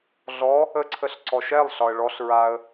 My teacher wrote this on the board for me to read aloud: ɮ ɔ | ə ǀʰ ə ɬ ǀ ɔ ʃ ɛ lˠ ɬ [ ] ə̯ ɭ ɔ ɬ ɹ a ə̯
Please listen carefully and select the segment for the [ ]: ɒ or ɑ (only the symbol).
ɒ